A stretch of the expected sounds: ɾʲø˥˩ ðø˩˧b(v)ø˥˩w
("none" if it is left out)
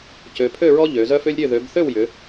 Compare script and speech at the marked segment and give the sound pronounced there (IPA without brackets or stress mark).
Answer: θ